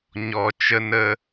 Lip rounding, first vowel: rounded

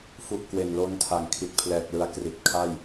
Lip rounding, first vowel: rounded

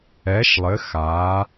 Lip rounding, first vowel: unrounded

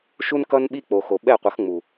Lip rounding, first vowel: rounded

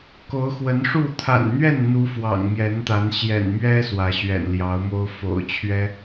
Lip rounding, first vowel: rounded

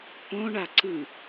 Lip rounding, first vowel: rounded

